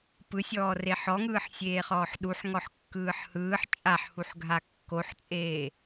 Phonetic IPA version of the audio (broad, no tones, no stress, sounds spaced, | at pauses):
p ɯ sʲ ɔː r e ħ ɔ ŋ ɯː ħ sʲ eː χ ɔː ħ ɗ u ħ ŋ ɔ ħ kː ɯː ħ h ɯː ħ t͡ʃʼ a ħ h u ħ ɡʱ a kː o ħ t͡sʼ eː